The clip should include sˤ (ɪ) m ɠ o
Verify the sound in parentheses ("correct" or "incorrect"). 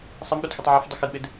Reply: incorrect